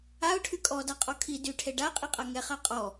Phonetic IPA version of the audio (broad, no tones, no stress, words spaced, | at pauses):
aʊ̯ʈʰy kʼɔ daqʼɔkʰi dyʈʰe ɖaqʼiqʼa ŋɛχa qʼɔ